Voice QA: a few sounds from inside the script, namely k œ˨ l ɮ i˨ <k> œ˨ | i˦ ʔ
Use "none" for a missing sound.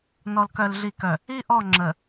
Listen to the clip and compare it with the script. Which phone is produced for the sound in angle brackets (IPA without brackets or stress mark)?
k